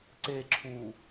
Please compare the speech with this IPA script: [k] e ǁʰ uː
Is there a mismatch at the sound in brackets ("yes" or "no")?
yes